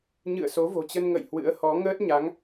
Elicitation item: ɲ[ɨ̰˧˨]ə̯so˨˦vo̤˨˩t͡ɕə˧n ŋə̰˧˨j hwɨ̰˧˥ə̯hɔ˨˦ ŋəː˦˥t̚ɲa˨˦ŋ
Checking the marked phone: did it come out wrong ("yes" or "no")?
no